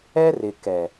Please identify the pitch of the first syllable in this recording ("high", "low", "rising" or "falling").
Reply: high